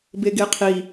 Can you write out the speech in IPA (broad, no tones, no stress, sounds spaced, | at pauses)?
b e ɡ e qʰ i